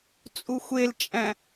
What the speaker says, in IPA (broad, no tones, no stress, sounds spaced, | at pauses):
t͡sʼ u xʷ e l t͡ʃʼ æ̃